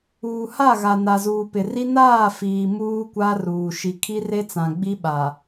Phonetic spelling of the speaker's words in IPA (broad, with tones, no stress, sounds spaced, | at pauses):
uː˨ h a˦˨ ɣ a˨ n a˨ z uː˨ p ɪ˨ r i˦ n aː˦˨ f iː˨ m uː˦ kʷ a˦ r uː˨ ʃ i˨ kʰ i˦ r e˦ t͡s ã˨ ɡ͡b i˦ ɓ a˨